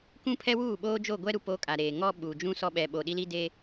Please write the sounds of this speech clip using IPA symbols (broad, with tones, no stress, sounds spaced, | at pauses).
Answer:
k ũ˦ pʰ ɛ˦ w uː˦˨ ɓ oː˦ d͡ʒ o˦˨ ɡʷ ɛ˦ ɾ u˨ p o˦ kʼ a˨ ɾ eː˨ ŋ ɔ˦ ɓ u˨ d͡ʒ ũ˦ s ɔ˦ ɓ ɛ˨ ɓ o˨ ɗ i˦ l i˦ d e˦